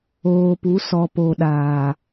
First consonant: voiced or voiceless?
voiceless